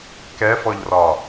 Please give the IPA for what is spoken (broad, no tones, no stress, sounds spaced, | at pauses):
k ɛ f ɔ ʎ r ɒ